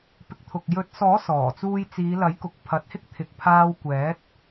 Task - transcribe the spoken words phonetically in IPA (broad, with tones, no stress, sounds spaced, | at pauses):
p ɪ˨ k̚ t̪ʰ ʊ˨ k̚ j ɵ˨˥ t̚ s ɔː˨˥ s ɔː˨˩ t͡s uː˧ j t͡s iː˨˧ l ɐ˨˥ j k ʊ˨ k̚ pʰ ɐ˨ t̚ h ɪ˥ k̚ t̪ʰ ɪ˨ k̚ pʰ aː˧ w kʷ ɛː˨˥ t̚